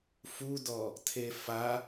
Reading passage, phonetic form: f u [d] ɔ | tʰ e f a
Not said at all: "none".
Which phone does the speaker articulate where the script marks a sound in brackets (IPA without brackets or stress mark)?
d